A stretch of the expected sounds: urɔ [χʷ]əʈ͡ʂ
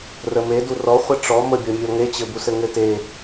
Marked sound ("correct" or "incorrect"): correct